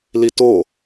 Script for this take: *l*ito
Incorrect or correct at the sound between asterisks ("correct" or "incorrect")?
correct